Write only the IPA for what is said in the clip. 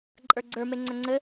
ǃʼ ə˞ ɡ͡ǀ ə˞ m e ŋ͡ǀ œ ŋ͡ǀ ɘ

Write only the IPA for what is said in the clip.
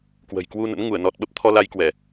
k w ə̤˨˩ j k w u˧ n ə̰˧˥ n ŋ u˧˩ ə̯ n ɔ˨˩ t̚ ɓ ə˦˥ p̚ t̪ʰ ɔ˧ l a˧ j k w ɛ˧˩˨

